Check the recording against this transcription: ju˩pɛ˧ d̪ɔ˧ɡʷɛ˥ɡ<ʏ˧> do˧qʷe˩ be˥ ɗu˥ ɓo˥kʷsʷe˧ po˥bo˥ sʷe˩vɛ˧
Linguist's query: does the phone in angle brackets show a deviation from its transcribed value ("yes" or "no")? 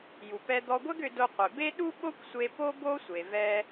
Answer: no